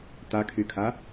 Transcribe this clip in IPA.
t̪akʰykʰa

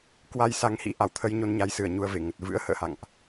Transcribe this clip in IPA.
kwa˧jsa˨˦ŋhḭ˧˥ ʔa˧˩w t̪ʰə˧jɲo˧nɲa˨˦jsɨ˧˩ə̯ ɲu˧ə̯ve˧˩ŋə˨˩t̚ vɨ̰˧˥ə̯hə̰ː˧˨ha̰˧˨ŋʔ

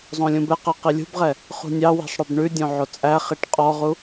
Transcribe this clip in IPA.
zˤõlʲũbɛqɛ qilʲṳbʁɛ | χṳnʲɑwi̤sˤ ɽœbɳʉdʲõ ʕot͡sʼæχiʈ qʼɔʁu

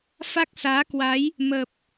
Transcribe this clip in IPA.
fa˦˥k̚saː˨˦kwa˨˦j | mə˨˩p̚

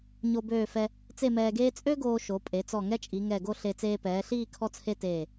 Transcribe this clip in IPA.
ɲo˧ bøː˧˩fɛ˧ | t͡se˥˧mɛː˧ɡeː˥ t͡sʼø˥ɡoː˧ ʃo˩˧pʼe˩˧t͡sɔ˧˩ ŋɛ˥t͡ʃʼi˩˧ŋɛ˧˩ɡo˥˧ ɬe˧ t͡seː˧pɛː˩˧ɬiː˥˧ kʰɔ˥t͡sʰe˥teː˧˩

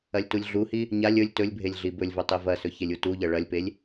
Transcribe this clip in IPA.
ɐlʲtulʲɮuhi | ɲalʲ ɵlʲ tɵlʲbʱelʲ ɮibɵlʲvɵ tˤivɐsɵ çelʲutuʎɐ ɭɐlʲpelʲ

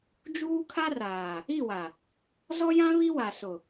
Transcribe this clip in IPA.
d͡ʒuː˦kʰa˦raː˨ | i˦˨wa˨ | zɔ˦jã˦ βi˦wa˨sʊ˨

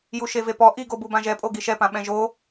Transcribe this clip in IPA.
juʃevepɔ ʔiɡobu bãʒɛpʼo ɡiʃɛpã ɓɛ̃ʒo

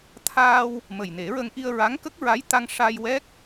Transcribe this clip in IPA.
t̪ʰaː˧w | mə˨˩jne˨˩˦ɹə˧ŋ ʔi˧ə̯ɹa˧˥ŋkə˦˥k̚ɹa˧˥j t̪a˧ŋʂa˧jwɛ˦˥k̚

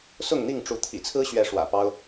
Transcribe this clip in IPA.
sʊ˥˨ŋn̪i˥˨ŋʈ͡ʂu˨˦ t̪ʰḭ˨˩t͡sʰɹ̩˦ɕɥɛ˨˦ ʂwä̰˨˩pɑ˦ʊ̯

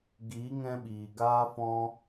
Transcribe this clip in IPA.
ɡiː˨˦ŋɛ̃˧ ɓiː˨ɡaː˦ fɔ̃˧

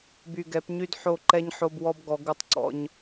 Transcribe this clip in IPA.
by˨ɡɛ˨˦pɲy˦d ħo˦˨ǃɛ˦ɲ ħo˦b wɔ˦bɡɔ˨˦ ɡu˦tˤǀɔ̰˦ɲ

